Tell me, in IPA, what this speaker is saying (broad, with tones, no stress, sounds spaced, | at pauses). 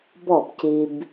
b ɔ˥˩ b c i˧ b